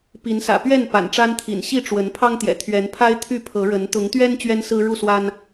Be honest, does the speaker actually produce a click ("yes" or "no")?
no